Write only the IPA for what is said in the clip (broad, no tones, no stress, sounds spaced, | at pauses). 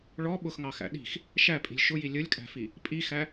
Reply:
ɭ ɔ ɓ ʊ x ŋ ɑ x æ̰ ɗ i̤ x | ʃ æ pʼ i̤ lʲ ʃ ʊ j i lʲ ə lʲ kʼ æ̤ f i | pʼ i x æ